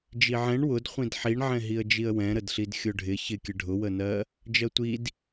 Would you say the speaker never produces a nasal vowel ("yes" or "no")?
no